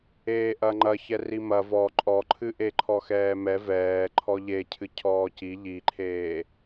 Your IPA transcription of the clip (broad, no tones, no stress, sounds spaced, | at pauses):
eː ʔ ɐ ŋ͡ǃ ɐ ç ɛ r i m ɐ v ɔ ǃʼ ɔ ǃʰ ɨ ʔ e ǃʰ ɔ x ɛː m ɛ v ɛː ǃʰ ɔ ʎ e cʰ ɨ cʰ ɔː c i ʎ i ǃʰ eː